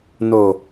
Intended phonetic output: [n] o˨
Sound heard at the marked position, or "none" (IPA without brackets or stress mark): n